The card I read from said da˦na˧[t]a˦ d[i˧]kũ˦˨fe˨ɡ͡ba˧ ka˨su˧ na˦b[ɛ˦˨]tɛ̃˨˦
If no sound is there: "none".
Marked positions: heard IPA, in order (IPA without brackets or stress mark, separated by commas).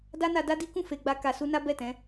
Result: d, i˦, ɛ˦˨